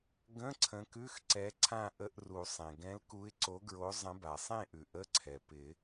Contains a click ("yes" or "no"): yes